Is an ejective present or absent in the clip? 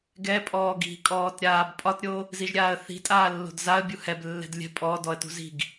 present